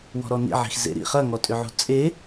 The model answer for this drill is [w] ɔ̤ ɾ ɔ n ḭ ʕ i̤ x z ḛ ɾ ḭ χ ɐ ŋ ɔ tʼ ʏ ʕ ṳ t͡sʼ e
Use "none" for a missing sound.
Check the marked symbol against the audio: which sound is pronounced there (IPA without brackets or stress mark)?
w